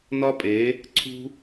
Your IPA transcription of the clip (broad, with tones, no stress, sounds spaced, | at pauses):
n ɒ˦ pʼ e˨˦ | ǀʰ ṳ˦